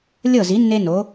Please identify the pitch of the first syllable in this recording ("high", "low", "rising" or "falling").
falling